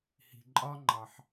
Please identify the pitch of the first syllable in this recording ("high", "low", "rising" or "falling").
low